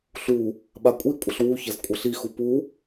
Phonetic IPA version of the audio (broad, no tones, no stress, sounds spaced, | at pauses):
ɬ u | ɓ a kʷʼ i kʷʼ ə ɬ w u ç ɐ z kʷʼ ɐ ɬ i x u p u